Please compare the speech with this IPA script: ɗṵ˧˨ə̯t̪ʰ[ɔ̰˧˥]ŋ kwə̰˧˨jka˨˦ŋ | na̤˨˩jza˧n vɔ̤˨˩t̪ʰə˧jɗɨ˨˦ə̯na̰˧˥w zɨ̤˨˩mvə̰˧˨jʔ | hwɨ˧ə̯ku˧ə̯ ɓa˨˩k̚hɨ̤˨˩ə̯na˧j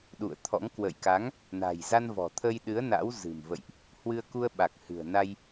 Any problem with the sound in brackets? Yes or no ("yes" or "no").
no